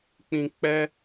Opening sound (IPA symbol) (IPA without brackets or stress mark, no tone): k͡p